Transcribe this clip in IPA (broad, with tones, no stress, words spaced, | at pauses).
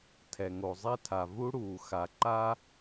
tʰɛ˨ŋo˨zˤɛ˦tʰa˨ vu˦ɽuː˨xa˨ǃa˦